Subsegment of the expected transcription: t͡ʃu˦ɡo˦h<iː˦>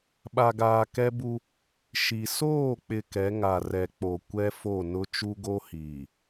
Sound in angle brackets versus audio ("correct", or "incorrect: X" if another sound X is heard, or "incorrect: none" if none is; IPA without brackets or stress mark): incorrect: iː˨